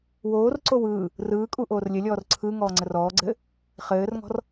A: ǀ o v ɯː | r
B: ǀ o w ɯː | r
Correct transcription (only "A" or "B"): B